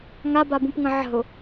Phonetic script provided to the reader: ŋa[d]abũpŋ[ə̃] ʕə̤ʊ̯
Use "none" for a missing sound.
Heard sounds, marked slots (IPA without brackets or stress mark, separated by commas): b, ə̃